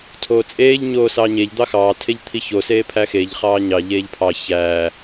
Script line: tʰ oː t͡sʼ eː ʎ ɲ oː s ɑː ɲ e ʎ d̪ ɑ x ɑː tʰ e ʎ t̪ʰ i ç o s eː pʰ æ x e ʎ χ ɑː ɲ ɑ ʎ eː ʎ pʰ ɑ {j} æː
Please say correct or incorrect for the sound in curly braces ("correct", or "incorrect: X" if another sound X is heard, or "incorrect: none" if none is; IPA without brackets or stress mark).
incorrect: ç